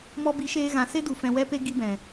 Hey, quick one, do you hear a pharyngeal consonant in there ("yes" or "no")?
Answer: no